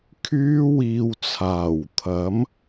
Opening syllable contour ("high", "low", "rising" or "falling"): high